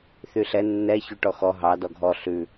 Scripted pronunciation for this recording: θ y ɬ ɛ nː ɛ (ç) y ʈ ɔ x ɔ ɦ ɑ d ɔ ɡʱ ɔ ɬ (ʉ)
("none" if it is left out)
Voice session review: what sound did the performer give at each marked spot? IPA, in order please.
ç, ʉ

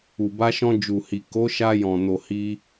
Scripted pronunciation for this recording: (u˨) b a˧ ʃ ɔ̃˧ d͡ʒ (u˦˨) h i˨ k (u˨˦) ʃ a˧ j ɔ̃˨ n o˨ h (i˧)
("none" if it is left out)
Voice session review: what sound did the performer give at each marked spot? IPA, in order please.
u˨, u˨, o˨˦, i˧

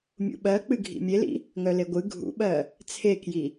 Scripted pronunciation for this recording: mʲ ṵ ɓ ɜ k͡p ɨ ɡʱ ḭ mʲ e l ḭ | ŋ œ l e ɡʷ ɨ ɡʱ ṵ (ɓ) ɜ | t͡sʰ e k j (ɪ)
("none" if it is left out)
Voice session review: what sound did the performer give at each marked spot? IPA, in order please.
ɓ, i

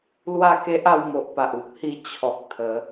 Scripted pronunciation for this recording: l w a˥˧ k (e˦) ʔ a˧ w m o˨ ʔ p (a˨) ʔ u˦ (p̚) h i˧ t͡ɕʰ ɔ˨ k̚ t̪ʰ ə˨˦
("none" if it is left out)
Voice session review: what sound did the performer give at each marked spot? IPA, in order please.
e˦, a˨, p̚

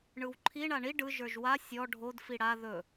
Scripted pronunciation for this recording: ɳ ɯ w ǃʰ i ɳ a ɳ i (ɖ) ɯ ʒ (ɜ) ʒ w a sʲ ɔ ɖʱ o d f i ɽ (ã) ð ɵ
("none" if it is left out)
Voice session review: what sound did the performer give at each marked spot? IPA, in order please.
ɖ, ə˞, a

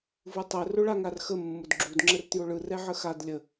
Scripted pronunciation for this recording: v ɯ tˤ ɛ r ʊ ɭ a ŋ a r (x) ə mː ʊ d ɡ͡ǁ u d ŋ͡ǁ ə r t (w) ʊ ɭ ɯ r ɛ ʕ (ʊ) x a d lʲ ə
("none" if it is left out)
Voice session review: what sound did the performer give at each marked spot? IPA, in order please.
x, j, ə

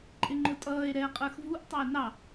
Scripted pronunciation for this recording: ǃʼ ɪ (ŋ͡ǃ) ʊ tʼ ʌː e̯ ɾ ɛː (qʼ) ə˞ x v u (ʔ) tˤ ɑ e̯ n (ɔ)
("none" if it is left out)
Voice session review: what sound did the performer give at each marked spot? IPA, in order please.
ŋ͡ǃ, qʼ, ʔ, ɑ

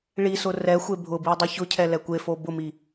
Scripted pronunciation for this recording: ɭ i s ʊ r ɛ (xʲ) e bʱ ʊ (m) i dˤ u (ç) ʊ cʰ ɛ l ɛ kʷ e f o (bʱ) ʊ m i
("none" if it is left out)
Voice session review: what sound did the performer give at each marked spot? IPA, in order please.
xʷ, b, ç, b

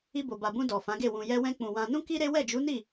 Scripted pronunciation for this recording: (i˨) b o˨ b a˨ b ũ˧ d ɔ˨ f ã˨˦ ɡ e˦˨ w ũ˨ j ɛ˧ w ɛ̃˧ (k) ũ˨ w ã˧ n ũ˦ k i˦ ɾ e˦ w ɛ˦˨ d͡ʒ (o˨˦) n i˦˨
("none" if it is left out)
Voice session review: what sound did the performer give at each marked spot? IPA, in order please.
i˧, k͡p, u˨˦

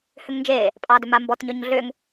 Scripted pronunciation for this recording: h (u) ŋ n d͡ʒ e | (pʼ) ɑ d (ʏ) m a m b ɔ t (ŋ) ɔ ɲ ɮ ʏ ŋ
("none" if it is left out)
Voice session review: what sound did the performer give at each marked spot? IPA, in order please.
ʏ, pʼ, ʏ, ɲ

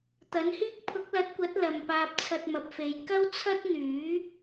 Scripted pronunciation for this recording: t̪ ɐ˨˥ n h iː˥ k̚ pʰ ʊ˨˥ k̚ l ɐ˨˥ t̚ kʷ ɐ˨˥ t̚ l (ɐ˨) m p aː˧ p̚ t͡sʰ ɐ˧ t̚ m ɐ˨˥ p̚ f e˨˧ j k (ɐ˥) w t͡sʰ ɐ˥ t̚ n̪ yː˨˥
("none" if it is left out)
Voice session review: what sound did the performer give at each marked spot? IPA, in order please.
ɐ˨, ɐ˥

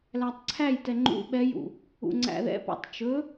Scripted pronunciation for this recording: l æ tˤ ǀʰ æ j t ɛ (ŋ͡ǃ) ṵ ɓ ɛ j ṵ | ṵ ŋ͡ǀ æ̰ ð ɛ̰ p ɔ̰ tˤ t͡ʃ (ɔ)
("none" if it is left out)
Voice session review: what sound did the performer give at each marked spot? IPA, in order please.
ŋ͡ǃ, ɵ

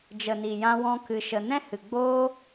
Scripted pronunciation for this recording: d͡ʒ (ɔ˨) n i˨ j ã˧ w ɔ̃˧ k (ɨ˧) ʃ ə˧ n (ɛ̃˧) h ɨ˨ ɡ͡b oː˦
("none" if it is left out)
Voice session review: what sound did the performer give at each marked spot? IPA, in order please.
ə˨, ɨ˧, ɛ̃˦

